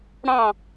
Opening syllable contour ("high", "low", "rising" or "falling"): falling